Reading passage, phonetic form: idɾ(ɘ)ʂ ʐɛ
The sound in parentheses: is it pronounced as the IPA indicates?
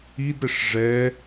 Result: yes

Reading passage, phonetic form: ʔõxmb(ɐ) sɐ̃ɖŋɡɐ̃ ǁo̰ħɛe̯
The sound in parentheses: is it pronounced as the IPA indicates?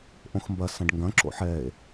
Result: yes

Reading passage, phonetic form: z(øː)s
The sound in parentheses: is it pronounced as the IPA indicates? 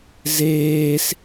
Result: no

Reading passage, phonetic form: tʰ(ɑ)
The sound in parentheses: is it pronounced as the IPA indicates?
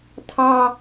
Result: yes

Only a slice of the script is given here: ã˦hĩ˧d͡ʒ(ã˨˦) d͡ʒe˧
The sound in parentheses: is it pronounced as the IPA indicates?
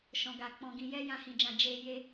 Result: no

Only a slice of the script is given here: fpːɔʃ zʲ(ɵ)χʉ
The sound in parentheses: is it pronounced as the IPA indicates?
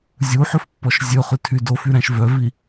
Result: yes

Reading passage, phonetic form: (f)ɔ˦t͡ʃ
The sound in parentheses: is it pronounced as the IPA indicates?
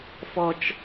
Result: yes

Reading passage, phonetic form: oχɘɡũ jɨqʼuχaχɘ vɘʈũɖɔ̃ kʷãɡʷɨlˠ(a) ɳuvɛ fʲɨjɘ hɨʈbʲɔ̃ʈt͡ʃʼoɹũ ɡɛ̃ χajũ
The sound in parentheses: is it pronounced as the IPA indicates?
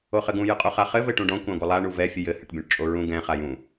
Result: yes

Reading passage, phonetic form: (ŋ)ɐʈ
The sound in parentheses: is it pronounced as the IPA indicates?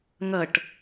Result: yes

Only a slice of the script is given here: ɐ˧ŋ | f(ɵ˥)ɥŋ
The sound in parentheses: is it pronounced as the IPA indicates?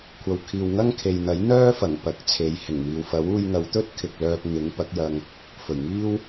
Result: no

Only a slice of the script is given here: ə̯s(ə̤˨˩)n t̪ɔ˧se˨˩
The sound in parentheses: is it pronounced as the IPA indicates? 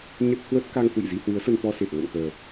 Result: no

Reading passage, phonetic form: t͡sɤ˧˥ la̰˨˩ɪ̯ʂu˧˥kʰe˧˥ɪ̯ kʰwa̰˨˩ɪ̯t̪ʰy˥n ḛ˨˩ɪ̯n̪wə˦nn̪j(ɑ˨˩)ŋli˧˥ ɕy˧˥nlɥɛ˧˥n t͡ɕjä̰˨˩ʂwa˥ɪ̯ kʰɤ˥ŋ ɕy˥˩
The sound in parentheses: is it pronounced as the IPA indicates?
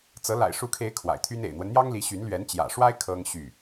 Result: no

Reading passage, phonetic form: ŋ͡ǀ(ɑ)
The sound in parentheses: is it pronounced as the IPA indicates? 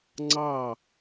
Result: yes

